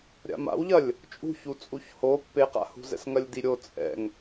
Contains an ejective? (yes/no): yes